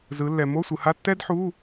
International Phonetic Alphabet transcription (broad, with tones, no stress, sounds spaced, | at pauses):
z ɯ˩˧ lː ɛ˩ m o˧˥˧ sʷ ɯ˩˧ h a˧˥˧ tː ɛ˥ d ħ u˧˥˧